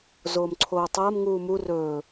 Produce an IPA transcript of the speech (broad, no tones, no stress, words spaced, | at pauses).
zoːmǀʰoːtˤɐːm ŋuːmu rɵː